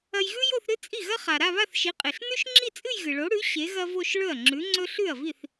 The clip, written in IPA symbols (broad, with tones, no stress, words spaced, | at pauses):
ɐ˧jɣʉ˥jo˥˧θɾɨ˥ t͡sʼi˥˩ɣɐ˥χa˩ ɾa˥˧βa˥˧θʃi˨˥qʼe˩ɬ nʉ˥ʃŋ͡ǁi˥˧t͡sʼɨ˥˧j ɣɨ˩ɭo˨˥ɽʉ˨˥ ɕe˨˥ɣɐ˥vo˥˧ʃ ɭɵ˥˩ɐ̯ŋ͡ǁʉ˨˥ŋ͡ǀɵ˥ ɬʉ˥˩ɐ̯vi˥˩θ